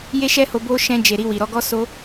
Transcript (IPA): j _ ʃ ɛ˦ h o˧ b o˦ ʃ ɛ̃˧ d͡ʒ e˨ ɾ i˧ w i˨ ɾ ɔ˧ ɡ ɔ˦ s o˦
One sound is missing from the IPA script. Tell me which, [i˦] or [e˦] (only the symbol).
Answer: e˦